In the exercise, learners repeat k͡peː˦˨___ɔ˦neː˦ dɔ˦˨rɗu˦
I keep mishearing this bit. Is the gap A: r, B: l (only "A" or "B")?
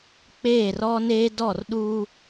A